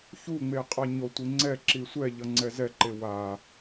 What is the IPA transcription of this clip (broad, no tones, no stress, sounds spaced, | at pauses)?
ç u ŋ͡m e qʼ a ɲ o tʷ i ŋ͡ǀ ɛ ǁ i sʷ ɛ ʎ ʌ ŋ͡ǀ ɛ z ɛ ǃ e w a